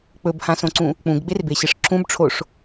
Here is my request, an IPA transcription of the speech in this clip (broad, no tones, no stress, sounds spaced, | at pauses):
k͡p ɵ b h ã s õ ǀ ũ | k͡p ũ ɡ ɡ͡b e r b e ɕ ɨ ʂ ǁ ũ b ʈ͡ʂʰ o ʂ